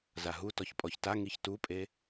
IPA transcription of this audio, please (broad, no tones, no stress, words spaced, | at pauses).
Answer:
zaɦu tɔçpʼɔçta ŋiçtupʼe